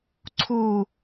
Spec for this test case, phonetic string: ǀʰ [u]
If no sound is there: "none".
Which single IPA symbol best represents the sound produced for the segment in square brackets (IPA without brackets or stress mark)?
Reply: u